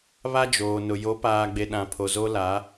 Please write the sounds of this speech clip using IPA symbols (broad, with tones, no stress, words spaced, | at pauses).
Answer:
βa˦d͡ʒoː˨nʊ˨ jo˨˦paː˨ɡ͡be˨ ɗã˨ pʰo˨zo˦la˨˦